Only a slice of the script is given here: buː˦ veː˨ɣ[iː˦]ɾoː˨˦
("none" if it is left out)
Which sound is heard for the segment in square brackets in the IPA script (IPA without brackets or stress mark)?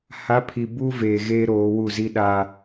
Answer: eː˦